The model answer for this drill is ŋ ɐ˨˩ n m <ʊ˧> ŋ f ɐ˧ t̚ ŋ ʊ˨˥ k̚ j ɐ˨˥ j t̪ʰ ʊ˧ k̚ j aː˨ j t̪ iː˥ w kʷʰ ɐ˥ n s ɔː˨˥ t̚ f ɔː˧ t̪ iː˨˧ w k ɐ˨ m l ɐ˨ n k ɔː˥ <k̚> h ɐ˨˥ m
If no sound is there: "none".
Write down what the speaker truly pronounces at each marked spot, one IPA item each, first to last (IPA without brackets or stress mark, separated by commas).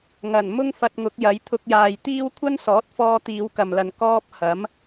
ʊ˥, p̚